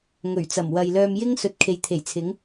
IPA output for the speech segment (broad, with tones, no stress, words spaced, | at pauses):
ŋɵ˨˩ɥ t͡sɐ˨˩mwɐ˨jlœː˧mjɪ˥ŋ sɵ˨t̚kʰe˨jt̪ʰe˨˩jt͡sʰɪ˨˥ŋ